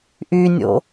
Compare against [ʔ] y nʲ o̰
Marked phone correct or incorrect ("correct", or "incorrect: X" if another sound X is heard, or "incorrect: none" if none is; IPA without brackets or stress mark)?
correct